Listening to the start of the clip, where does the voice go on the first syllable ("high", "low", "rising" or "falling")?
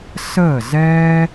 falling